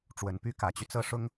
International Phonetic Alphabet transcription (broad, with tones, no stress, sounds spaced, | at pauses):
ʈ͡ʂ w ə˨˩ n p y˥ k ä˨˩ t͡ɕ y˦ t͡s ɤ˥˩ ʂ ʊ˥ ŋ